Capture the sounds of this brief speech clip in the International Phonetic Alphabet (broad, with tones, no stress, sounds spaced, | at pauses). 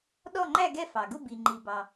ɗ ɔ˥˧ ŋ͡ǃ æ˥˧ ɡ ɛ˥˧ f ɑ˩ ɡ ʊ˥˧ b i˩ ŋ͡ǃ i˩ b ɑ˩